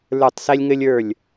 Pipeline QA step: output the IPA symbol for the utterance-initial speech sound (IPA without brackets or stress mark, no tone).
l